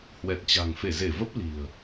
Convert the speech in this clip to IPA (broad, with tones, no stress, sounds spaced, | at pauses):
h w ɛ˨˩ t̚ t͡ɕ a̤˨˩ ŋ f e˧˩ z e˧˩ v ə˦˥ p̚ l i̤˨˩ ə̯